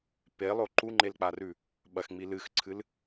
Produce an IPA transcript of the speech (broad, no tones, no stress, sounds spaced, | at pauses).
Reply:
p e lˠ o ǃ u ŋ͡ǃ e l k͡p a r ʉ | ɓ ɐ x ŋ͡m i l ɨ x ǀʰ ɨ l